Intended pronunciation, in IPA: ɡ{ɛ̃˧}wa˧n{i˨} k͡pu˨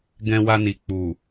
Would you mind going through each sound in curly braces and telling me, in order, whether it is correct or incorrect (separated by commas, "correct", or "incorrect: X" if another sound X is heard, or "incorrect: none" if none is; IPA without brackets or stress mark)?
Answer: correct, correct